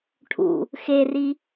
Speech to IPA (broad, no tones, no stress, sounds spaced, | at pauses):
ʈʰ ṵ | x e r i